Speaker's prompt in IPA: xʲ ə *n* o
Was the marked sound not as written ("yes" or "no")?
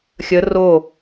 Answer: yes